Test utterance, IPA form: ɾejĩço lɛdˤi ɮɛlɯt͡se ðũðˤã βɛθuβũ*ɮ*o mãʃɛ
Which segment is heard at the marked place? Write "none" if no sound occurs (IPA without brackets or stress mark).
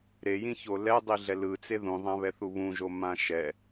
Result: ʒ